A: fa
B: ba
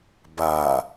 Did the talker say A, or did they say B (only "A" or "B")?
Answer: B